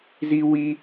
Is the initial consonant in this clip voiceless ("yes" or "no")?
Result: no